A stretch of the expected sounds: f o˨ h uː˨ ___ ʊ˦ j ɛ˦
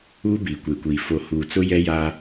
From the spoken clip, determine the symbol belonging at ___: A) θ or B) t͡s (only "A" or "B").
B